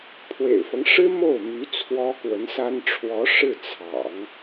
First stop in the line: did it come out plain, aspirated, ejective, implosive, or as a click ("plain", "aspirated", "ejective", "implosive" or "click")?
aspirated